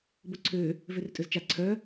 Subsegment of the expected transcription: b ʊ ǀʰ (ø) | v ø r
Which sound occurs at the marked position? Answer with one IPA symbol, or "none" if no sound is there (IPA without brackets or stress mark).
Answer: ø